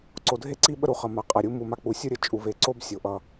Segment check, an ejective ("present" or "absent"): present